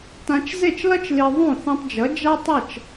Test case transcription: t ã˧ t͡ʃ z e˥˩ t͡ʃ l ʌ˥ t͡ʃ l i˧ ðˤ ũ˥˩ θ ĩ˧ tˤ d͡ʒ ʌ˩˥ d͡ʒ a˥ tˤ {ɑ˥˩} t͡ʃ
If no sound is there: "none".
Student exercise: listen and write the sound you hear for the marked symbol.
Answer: ʌ˥˩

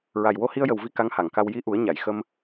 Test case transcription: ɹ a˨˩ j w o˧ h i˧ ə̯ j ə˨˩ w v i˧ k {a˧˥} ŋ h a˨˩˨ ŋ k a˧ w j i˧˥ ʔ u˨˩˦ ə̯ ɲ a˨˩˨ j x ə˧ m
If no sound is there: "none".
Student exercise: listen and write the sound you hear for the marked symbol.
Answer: a˧˥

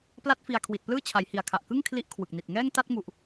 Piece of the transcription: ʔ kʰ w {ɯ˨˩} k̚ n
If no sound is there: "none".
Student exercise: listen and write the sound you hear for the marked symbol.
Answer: ɯ˨˩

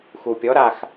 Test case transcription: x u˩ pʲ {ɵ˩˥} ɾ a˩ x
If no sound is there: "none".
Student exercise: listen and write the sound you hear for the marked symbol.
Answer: ɔ˩˥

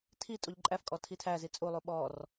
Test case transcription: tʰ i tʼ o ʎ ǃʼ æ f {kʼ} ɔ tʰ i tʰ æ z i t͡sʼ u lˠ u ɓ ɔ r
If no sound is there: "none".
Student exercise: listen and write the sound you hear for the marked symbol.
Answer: kʼ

